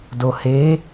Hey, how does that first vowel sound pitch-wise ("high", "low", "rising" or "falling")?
low